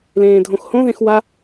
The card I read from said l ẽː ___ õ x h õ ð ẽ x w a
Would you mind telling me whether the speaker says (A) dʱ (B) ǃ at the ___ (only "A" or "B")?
A